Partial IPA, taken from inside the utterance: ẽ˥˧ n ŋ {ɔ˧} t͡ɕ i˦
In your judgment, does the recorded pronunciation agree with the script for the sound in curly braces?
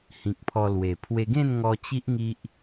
yes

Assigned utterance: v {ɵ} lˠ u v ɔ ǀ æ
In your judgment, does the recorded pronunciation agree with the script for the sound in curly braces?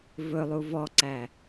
yes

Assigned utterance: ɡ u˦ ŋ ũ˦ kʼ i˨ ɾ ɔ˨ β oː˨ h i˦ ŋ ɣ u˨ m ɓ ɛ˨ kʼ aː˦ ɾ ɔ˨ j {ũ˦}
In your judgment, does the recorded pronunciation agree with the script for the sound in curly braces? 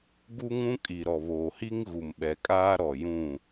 no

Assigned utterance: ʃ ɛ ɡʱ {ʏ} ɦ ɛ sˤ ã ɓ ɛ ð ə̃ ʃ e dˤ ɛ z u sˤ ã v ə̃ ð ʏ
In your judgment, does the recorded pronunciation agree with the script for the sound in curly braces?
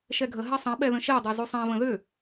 no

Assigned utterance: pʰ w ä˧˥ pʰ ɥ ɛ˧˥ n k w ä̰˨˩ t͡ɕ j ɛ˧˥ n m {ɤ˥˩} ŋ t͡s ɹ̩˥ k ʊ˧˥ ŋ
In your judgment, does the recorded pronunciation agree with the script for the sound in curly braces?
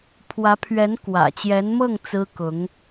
yes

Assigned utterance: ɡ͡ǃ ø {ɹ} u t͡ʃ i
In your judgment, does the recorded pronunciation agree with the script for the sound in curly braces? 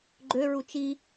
yes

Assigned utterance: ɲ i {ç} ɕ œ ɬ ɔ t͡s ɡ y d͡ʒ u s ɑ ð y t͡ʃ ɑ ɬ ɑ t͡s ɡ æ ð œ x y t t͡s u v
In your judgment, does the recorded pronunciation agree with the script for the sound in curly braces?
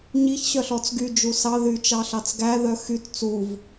yes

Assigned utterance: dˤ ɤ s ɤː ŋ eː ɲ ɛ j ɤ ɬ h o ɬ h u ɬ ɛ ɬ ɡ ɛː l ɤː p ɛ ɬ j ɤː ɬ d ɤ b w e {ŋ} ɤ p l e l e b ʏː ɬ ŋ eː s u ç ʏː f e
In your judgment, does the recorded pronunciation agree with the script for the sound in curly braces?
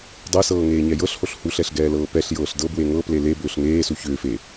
yes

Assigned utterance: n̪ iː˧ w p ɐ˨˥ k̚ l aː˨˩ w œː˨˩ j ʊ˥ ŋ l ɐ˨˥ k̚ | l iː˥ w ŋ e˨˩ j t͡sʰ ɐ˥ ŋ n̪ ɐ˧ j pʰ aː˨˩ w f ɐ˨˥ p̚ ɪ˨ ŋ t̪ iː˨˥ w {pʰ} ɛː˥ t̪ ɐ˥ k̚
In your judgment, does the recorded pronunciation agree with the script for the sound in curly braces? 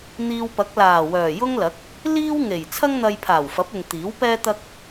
no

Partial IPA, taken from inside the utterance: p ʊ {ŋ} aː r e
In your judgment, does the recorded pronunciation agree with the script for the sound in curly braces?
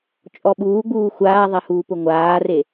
no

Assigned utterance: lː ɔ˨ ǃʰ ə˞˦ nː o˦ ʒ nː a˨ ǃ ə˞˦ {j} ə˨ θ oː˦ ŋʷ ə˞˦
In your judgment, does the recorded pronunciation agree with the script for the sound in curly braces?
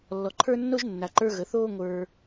no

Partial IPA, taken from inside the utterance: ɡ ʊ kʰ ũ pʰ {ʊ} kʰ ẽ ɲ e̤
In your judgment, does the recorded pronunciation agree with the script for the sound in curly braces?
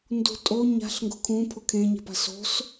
yes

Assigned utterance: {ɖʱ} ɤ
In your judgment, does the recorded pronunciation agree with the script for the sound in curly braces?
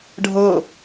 yes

